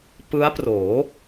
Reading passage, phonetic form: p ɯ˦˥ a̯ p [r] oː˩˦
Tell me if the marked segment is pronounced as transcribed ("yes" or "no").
yes